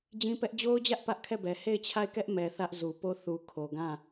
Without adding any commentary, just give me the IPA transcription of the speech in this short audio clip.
d͡ʑĩ˦pɛ˦ʔ d͡ʑo˦ʊ̯d͡ʑä˦ʔ pä˦ʔkʰɛ˦˨bɛ˨ he˦˨ɪ̯t͡ɕʰa˦˨ɪ̯kɛ˦ʔmɛ˨ θä˦ʔzu˨po˦˨ θu˨kʰo˨ ɡã˦˨

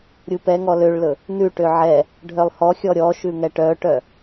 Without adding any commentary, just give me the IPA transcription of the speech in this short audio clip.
ɾʲupɛŋɔ løɭlɵ | nʉʈø ʕɛ | ɖʱœlˠhɔxʲɔ ɾʲɔ ʃʉŋɛʈœʈœ

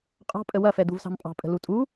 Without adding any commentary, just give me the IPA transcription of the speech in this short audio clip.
qʼɑ̤pʼə wɐfɛd̪uvsɑ̤m pʼɑ̤pʼə̤ lutʼu

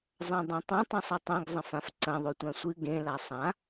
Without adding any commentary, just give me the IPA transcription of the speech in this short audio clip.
zˤãdˤẽtˤɐ̃ tˤĩsˤɨtˤẽɡ zˤɐ̃fãfǀɐ̃ ðˤotʷãsʷɨ ɡẽ lasˤã

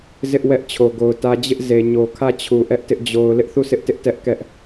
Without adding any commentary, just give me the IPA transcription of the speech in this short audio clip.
zɪ˦ʔ wɛ˦ʔt͡ɕʰo˨ɡo˨ʊ̯tä˦ d͡ʑɪ˦ʔze˨ ɲo˨kʰä˦˨t͡ɕʰu˨ ʔɛ˦ʔtɪ˦ʔ d͡ʑo˨ʊ̯ lɪ˦ʔθu˦˨sɪ˦ʔtɪ˦ʔ tɛ˦ʔ kɛ˦ʔ

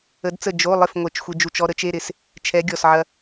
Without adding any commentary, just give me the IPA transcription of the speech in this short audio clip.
ə˧˥dt͡sə˥˨ d͡ʒo˧˥˧lˠɪ˥˨f ŋʷɛ˨˩˦t͡ʃxʷe˧d͡ʒu˧˩t͡ʃɔ˧ ɾə˧˥t͡ʃe˧˥˧ɾɪ˧˩s | t͡ʃʰɛ˧˥ɡʲɔ˧˩sʕɐ˧

